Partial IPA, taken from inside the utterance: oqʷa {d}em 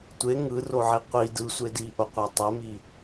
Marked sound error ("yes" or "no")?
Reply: yes